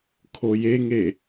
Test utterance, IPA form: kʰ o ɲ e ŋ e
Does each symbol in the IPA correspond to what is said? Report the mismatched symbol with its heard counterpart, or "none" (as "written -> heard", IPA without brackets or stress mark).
ɲ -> j